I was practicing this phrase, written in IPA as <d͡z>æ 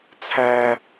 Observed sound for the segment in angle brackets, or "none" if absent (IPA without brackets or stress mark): t͡sʰ